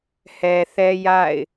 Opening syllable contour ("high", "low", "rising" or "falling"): low